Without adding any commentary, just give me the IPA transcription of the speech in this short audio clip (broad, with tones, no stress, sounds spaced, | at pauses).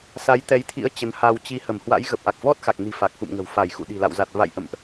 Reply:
s a˨˦ j t̪ ɛ˨˦ j t̪ʰ ḭ˧˥ ə̯ t͡ɕ ə˨˦ n h a˧ w t͡ɕ i˧ h ə˧˩ m h w a̰˧˥ j ɣ ə˨˩ p̚ ʔ a˨˩ k̚ v ɔ˦˥ t̚ x a˨˩ k̚ n i̤˨˩ f a˨˩ k̚ x ṵ˧˨ m ŋ ə̤˨˩ w f a˧˩ j x ṵ˧˨ ɗ i̤˨˩ l a̰˧˨ w z a˨˩ t̚ v a̰˧˨ j ʔ ə̰˧˨ m ʔ